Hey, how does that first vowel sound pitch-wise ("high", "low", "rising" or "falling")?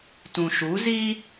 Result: low